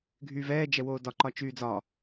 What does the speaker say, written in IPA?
ɡʱyːvɛː d͡ʒɛwoːdɒ ǃɒt͡ʃyːd͡zɒ

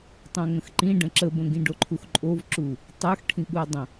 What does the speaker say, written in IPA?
tˤõŋə̃xǃĩ ɖə̃ǁəbə̃ɡĩ ɖoǃʰuxǃʼovǁu | tˤə˞xʈʰĩɠuɐ̯dˤə̃

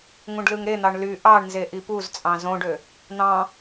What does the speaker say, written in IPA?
ŋũɖlɯŋɾen̪ɑɳ ly ʔɑɳnze ʔipuzt͡sʼɑ̃ zõɖø | n̪ɑ̃

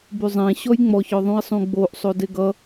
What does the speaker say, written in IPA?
byzˤẽ ɕɔjŋ͡mɔçɔ ðˤũi̯sˤũɡ͡boʔsˤo deɡʌ

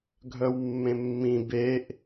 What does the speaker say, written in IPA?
ɡʱœwmːẽmːĩ beʔ

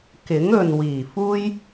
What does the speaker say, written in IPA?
kɪ˨˥ŋɵ˨n wiː˨˩fuː˥j

